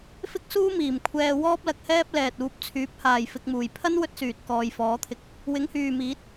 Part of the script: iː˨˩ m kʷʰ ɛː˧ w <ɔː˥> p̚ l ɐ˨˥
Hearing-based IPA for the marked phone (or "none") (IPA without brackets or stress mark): ɔː˥